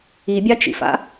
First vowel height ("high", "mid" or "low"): high